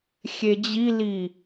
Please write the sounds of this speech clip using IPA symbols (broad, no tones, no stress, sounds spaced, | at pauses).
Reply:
xʲ e d͡ʑ i l i